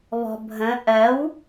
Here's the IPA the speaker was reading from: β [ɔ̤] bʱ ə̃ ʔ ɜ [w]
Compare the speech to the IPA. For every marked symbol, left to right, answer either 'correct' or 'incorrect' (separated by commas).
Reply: correct, correct